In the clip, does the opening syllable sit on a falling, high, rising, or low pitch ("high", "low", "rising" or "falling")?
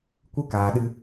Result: high